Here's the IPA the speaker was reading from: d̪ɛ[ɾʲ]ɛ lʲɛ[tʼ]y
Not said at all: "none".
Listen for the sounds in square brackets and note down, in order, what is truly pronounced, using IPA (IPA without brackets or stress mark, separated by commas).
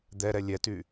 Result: ɾ, t